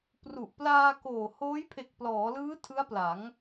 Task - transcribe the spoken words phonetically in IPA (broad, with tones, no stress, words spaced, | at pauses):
pru˨˩ʔplaː˧koː˨˩ hoː˦˥jpʰe˨˩k̚plɔː˩˦lɯː˦˥ tʰɯ˦˥a̯pla˩˦ŋ